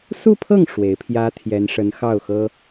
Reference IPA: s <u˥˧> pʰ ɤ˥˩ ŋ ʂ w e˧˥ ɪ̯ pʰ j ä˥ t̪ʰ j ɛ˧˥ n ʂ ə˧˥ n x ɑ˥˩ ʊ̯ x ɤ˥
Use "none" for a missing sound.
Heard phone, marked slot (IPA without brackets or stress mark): u˥˧